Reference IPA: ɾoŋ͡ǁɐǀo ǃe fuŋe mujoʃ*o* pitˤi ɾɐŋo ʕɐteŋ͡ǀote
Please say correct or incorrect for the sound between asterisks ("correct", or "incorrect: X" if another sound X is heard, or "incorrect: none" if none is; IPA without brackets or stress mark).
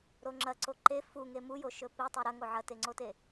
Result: incorrect: ɵ